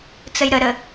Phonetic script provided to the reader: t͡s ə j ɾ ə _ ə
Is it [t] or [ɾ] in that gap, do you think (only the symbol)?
ɾ